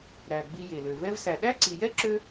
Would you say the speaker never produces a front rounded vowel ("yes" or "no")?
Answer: no